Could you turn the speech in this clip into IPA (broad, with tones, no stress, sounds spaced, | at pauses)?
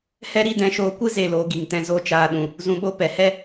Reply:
h ɛ˦ ɾ i˧ d ɛ̃˧ ʃ oː˧ kʷ ɨ˦ z e˦˨ l oː˧ ɡ i˨ ŋ t ɛ̃˧ z o˦ t͡ʃ aː˧ ɗ ũ˨ | z ũ˨ ɓ o˧ p ɛ˨ h ɛ˦